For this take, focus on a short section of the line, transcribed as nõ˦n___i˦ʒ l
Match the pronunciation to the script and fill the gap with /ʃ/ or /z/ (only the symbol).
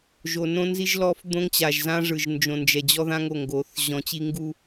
z